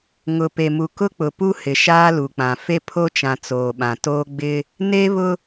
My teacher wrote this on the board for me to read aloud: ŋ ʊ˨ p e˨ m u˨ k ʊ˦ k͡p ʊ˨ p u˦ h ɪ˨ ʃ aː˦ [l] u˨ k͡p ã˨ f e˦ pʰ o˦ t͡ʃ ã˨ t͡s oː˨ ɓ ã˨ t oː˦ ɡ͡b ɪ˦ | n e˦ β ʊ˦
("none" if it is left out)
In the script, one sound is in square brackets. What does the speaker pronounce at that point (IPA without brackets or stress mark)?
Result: l